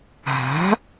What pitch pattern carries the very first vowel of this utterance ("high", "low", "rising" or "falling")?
rising